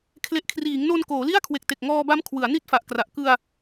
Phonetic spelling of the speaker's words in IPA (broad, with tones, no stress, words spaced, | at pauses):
kʰle˨˩ʔkʰriː˩˦ŋno˧n koː˩˦li˥˩a̯kʰwe˨˩k̚te˨˩k̚ ŋɔː˧ba˦˥m kʰwɯ˩˦a̯ni˥˩t̚fa˨˩ʔkra˨˩ʔ kɯ˧a̯